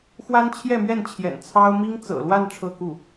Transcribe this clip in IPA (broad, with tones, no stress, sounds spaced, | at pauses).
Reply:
x w a˥ n t͡ɕʰ j ɛ˥˧ m ɥ ɛ˥˩ n t͡ɕʰ j ɛ̰˨˩ n t͡sʰ ɑ˥ ʊ̯ m i˥ ŋ t͡s ɤ̰˨˩ l w a˥˧ n ʈ͡ʂʰ ɤ˥˧ k u˥˩